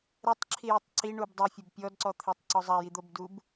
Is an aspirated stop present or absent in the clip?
present